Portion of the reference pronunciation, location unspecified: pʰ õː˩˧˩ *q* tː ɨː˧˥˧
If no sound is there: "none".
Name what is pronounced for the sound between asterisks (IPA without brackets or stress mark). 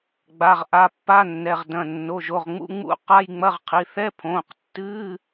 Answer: q